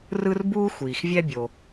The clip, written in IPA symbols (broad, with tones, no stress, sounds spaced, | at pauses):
r ɯ˥ r b uː˥ xʷ iː˩ x vʲ ɛ˥ bʲ o˩